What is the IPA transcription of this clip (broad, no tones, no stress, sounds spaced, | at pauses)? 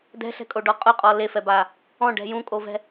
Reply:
d ɛ̤ ɬ ɛ̤ kʼ o ɖ ɔ qʼ ʊ qʼ ɔ l e f ɛ b a | ɔ̃ ɖ ɛ̤ j ũ kʼ o v ɛ̤